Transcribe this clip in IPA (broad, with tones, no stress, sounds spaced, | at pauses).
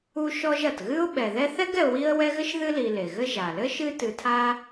u˦ ʃ ɔ˦ ʒ ɐ˩ t ɣ ɨ˥ ʊ̯ ɓ ɛ˩ ð ɛ˦ θ ɛ˥ ɡ ɛ˨ ʊ̯ w i˦ ə̯ w ɛ˦ ɣ ɘ˥ ʃ ð ɨ˦ l i˨ l e˩ ɣ ɘ˦ ʒ a˩ l ɘ˥ ʃ ɨ˦ t ɨ˨ tʰ a˦